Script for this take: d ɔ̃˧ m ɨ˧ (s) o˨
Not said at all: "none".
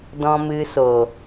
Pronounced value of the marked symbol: s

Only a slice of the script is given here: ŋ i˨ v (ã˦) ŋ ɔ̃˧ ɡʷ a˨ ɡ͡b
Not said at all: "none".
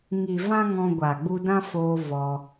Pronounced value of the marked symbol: ã˦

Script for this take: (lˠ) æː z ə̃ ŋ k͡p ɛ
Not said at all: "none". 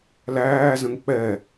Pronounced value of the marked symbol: l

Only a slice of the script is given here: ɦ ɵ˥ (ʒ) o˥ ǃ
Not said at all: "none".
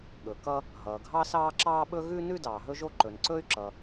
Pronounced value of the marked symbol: ʒ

